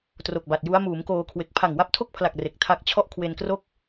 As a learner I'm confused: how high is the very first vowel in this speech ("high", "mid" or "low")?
mid